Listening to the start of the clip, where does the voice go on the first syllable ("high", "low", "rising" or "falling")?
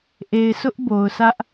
low